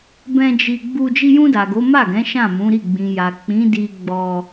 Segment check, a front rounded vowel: absent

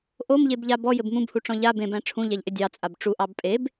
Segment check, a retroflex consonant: present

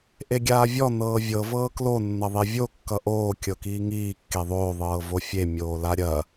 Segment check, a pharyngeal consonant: absent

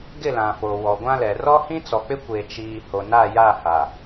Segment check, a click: absent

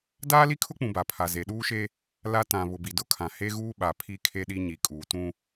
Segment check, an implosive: present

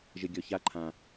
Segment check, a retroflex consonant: absent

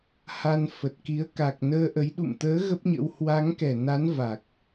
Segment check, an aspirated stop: absent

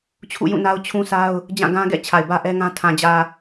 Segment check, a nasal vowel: present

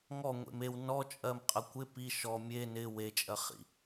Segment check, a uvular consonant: present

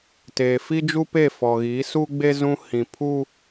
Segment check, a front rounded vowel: absent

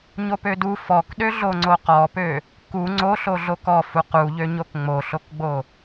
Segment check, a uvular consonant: present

